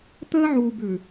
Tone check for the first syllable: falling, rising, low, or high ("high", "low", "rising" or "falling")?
high